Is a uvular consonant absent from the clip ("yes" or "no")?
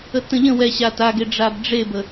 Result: yes